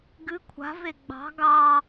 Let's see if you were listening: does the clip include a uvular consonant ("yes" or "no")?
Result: no